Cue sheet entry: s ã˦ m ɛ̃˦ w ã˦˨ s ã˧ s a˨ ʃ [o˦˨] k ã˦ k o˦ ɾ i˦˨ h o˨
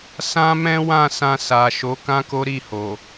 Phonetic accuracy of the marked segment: incorrect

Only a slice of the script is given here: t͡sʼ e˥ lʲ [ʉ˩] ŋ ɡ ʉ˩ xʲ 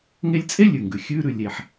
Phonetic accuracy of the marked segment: correct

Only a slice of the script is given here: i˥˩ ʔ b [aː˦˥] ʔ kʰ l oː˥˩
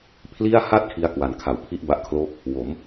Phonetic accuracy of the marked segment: incorrect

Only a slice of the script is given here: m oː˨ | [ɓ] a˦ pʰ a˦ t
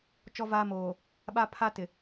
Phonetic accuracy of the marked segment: correct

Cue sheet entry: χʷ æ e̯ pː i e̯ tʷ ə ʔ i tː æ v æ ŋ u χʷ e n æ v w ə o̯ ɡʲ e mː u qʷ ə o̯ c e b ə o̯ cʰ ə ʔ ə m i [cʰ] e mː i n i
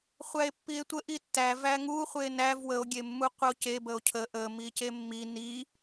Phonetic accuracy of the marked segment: incorrect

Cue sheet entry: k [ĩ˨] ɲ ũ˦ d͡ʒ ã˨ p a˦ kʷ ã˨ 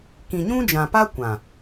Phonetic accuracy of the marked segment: correct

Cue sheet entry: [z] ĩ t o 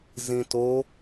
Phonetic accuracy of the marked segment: correct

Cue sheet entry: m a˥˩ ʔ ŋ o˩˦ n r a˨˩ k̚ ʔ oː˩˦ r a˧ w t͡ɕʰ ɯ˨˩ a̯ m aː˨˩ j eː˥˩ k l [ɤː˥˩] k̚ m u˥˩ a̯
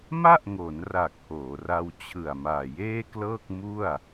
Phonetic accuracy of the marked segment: correct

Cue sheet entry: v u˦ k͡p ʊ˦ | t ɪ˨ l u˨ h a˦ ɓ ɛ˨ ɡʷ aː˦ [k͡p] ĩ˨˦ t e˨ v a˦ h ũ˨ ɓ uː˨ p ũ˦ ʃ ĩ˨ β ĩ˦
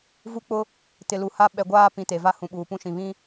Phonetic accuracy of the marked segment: incorrect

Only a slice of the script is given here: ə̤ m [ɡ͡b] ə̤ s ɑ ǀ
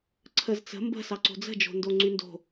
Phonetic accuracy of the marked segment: incorrect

